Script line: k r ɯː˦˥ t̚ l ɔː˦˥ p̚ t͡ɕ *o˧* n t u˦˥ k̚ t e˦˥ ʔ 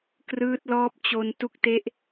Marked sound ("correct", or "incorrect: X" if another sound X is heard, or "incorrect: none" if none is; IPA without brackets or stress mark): correct